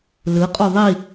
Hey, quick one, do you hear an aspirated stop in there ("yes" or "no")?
no